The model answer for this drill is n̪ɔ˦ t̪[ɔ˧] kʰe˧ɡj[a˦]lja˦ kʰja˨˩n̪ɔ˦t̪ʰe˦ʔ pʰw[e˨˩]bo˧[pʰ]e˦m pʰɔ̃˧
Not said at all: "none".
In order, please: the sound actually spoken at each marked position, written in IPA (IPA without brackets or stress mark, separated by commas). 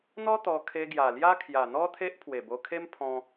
ɔ˧, a˨˩, e˨˩, kʰ